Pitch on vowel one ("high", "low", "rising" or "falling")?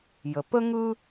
low